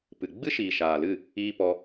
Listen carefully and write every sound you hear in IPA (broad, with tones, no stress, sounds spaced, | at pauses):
p ɨ˨ ɡ͡b ɨ˦ ʃ iː˨ ʃ aː˨ l ɨ˦˨ | iː˦ p ɔ˧